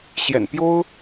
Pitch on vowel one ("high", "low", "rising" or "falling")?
low